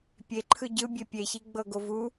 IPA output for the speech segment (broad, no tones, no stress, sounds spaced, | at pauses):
pʲ e ǃʰ ɯ ɟ ɯ bʲ e pʲ e ç i ɡ͡b ɤ ɡ o v u